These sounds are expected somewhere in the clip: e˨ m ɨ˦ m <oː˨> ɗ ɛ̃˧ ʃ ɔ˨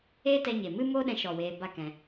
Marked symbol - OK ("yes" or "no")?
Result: no